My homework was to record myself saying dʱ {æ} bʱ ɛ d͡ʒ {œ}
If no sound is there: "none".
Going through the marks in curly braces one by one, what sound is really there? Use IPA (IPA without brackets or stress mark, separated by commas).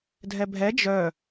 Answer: ɛ, œ